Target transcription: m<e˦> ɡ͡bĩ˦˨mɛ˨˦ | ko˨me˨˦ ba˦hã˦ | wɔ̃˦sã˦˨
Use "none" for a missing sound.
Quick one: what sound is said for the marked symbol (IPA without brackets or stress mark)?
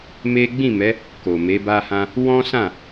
e˦